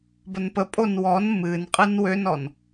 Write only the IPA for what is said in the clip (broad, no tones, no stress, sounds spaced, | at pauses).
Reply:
b ə n p ə pʼ o n w ɔ n m ɨ n qʼ ɨ n w ø n ɔ n